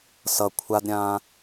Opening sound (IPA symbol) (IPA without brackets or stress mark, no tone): s